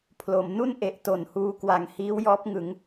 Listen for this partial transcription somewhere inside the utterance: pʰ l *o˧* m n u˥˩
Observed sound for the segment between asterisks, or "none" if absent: o˩˦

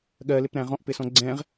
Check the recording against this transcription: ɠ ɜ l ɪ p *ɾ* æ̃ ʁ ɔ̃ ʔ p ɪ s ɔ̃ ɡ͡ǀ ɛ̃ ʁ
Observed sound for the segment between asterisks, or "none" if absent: ɾ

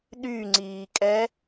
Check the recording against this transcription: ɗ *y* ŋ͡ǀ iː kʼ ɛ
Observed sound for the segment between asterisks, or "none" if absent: y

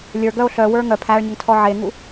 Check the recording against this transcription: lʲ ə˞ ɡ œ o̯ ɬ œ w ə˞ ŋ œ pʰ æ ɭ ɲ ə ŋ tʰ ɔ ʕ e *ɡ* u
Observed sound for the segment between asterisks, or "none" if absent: ŋ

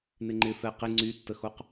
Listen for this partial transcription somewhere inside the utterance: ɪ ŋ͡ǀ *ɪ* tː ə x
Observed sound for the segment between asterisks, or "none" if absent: y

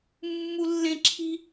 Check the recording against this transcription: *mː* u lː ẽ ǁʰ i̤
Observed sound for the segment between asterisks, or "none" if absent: mː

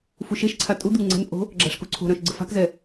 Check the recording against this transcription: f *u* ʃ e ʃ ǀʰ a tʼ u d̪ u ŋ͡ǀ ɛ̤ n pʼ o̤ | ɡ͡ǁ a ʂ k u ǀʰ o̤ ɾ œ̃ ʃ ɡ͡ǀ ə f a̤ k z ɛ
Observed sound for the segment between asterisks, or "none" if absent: u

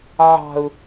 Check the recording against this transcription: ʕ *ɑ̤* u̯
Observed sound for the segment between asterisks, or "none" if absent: ɑ̤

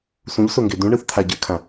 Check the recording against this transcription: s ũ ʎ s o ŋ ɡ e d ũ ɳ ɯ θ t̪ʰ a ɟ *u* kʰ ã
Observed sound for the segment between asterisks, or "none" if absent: ɯ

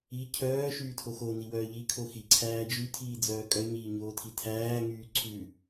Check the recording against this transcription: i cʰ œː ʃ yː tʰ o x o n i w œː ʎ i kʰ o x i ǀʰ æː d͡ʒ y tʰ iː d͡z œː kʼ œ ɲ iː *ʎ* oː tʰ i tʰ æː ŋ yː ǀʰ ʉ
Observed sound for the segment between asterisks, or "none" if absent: ɲ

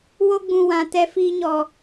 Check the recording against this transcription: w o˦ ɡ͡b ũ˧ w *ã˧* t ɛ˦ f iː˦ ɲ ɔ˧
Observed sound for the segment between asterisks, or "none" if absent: ã˧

